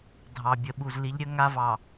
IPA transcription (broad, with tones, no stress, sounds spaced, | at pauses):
dʱ ɑ˨ bʲ ə˨ ɓ u˨ z l i˨˦ ʎ ɾʲ ə˦ ŋ a˦ v ɑ˨